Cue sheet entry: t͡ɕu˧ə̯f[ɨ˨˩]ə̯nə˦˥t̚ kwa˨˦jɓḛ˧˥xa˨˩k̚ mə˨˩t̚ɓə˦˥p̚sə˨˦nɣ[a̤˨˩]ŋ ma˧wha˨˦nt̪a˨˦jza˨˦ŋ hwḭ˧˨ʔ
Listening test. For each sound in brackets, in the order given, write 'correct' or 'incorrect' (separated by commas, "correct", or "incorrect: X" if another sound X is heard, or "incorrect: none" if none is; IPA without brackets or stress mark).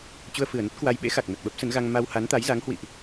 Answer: correct, incorrect: a˧